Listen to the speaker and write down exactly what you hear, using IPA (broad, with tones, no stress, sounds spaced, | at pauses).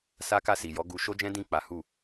s a˦ k a˦˨ s i˨ j ɔ˨˦ ɡ u˦ ʃ o˦ d͡ʒ ɛ̃˦ d ĩ˦˨ k͡p a˨˦ h u˦˨